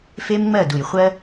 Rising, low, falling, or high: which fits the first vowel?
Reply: high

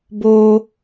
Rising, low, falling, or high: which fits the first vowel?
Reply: high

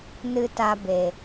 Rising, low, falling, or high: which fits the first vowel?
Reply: high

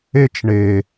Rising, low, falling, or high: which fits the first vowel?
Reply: high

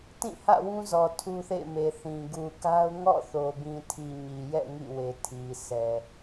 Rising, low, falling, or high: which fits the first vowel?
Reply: falling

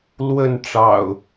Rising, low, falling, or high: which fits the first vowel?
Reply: falling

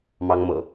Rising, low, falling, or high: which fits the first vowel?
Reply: high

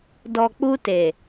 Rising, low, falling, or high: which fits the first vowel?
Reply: low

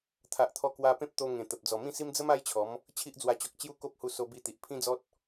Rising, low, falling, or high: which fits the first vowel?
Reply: low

